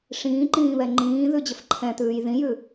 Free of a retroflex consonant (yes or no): no